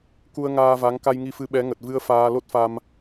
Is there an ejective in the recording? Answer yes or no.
no